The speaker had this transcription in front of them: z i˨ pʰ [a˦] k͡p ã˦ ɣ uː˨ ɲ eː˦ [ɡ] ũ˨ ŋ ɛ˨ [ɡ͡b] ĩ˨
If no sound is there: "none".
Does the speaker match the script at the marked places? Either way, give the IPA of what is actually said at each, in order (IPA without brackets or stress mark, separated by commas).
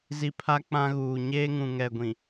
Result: a˦, ŋ, ɡʷ